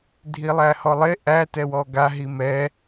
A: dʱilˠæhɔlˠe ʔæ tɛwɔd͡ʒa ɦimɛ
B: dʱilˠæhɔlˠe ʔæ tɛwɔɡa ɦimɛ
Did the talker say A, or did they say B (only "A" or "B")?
B